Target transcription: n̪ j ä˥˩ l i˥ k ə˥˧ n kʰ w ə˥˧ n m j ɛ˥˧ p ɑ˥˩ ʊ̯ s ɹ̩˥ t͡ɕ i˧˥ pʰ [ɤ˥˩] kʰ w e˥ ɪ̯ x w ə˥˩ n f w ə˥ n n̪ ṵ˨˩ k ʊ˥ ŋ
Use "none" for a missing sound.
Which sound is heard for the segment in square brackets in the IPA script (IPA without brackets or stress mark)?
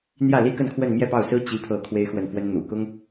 ɤ˥˩